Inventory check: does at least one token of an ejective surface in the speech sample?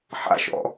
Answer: no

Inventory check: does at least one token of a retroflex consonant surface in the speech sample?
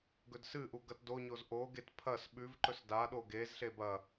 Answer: no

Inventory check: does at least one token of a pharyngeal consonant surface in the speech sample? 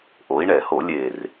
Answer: no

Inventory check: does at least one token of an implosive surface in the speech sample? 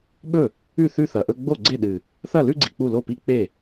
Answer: yes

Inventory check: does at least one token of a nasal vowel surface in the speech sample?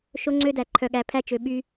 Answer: no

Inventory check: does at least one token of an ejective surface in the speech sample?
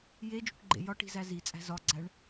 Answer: yes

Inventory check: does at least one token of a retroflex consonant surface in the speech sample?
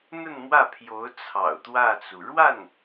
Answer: yes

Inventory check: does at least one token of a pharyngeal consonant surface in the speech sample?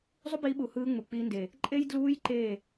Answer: no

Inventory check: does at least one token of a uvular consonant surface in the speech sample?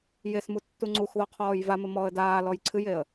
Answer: yes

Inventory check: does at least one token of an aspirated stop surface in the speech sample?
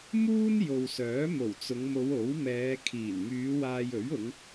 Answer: yes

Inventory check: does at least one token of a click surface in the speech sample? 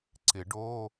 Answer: yes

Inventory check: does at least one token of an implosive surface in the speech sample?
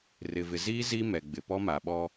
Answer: yes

